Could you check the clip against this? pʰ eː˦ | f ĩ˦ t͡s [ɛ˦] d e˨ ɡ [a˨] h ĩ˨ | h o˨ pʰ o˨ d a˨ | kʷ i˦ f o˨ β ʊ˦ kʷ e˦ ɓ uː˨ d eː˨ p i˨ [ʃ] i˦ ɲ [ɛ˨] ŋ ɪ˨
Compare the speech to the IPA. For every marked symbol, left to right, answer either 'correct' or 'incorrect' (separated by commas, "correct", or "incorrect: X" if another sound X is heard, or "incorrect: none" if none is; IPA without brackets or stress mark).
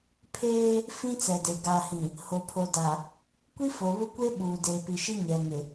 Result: incorrect: ɛ˨, correct, correct, correct